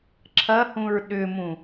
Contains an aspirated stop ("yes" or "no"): yes